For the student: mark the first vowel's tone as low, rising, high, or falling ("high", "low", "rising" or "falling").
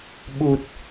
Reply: low